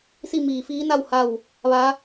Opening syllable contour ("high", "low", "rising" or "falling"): falling